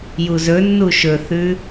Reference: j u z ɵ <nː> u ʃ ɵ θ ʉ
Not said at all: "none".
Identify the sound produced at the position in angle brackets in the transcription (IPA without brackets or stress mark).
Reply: nː